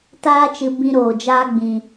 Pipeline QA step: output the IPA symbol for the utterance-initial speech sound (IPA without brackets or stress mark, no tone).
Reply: t